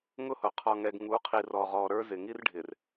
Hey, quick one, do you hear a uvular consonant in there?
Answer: yes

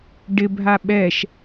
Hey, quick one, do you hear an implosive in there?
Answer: yes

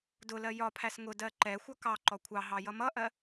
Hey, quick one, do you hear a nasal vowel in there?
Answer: no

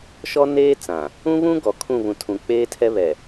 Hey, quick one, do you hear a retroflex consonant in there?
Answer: no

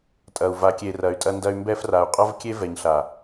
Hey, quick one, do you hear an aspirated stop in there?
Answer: no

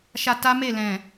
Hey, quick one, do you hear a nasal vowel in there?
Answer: yes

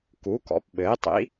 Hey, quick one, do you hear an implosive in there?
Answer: yes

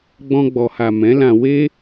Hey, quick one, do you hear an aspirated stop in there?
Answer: no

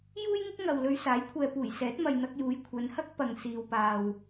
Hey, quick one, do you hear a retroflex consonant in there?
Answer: no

